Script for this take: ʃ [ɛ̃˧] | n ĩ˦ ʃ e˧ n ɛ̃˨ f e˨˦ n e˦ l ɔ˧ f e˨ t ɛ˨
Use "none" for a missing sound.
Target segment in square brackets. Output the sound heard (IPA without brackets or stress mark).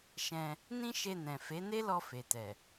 ɛ̃˧